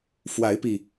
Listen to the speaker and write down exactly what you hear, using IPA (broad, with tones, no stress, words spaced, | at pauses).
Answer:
fwa˨˦ɪ̯pi˨˩